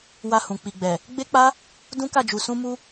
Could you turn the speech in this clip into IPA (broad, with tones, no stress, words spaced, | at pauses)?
wa˧hũ˨k͡pi˨ɡ͡bɛ˨ | ɡ͡be˦k͡pa˦ | dũ˦ka˦˨d͡ʒu˨ sũ˧ mu˧